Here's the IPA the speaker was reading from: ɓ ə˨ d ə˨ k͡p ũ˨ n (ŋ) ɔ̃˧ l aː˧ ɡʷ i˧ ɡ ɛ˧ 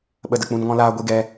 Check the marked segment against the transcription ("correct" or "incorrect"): correct